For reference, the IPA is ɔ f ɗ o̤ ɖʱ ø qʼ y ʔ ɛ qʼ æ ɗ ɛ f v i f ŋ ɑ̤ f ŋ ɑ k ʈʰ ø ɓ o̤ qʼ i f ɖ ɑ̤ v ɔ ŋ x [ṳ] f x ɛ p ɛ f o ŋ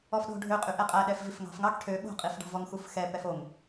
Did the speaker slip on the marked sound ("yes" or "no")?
yes